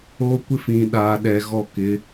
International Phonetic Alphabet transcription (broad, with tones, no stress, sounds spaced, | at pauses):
oː˦ kʷ ɪ˦ f ĩ˨ ɗ aː˨ ɗ ɛ˨ ɣ ɔ˦˨ k ɪ˨˦